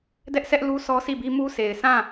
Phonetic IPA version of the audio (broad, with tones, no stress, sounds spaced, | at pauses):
d ɛ˦ ʔ sʰ ɛ˦ ʔ l u˦ s ɔ˦ s i˦˨ b i˦ m u˦ sʰ e˨ ɪ̯ sʰ ã˦˨